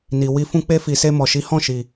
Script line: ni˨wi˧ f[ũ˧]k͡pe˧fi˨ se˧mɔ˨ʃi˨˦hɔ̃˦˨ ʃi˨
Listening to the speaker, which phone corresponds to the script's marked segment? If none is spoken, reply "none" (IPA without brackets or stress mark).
ũ˧